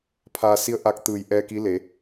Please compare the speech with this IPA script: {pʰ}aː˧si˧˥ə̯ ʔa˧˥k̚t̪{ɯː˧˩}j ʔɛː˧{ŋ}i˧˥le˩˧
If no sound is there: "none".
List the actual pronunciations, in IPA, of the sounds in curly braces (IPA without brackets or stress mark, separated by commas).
pʰ, ɯː˧˩, k